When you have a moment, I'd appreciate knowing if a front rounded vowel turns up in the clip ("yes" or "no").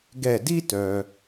yes